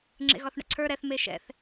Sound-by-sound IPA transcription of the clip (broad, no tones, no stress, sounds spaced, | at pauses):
ŋ͡ǁ ḛ ɣ ɒ θ ɳ ə̰ ǀʰ ə˞ ɾ ɛ θ m e ʃ ɛ̰ θ